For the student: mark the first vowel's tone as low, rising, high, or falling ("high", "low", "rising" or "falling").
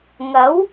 rising